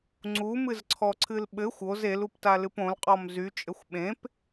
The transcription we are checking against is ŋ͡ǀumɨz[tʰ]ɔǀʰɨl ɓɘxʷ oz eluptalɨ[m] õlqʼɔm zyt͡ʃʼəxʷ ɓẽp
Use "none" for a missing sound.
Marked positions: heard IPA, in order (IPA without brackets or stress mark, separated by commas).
ǀʰ, p